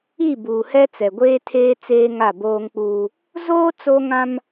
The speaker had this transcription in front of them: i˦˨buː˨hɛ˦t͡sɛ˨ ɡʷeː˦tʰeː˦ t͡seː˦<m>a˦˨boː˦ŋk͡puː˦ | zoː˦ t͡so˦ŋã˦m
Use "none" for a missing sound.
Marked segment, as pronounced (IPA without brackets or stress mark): ŋ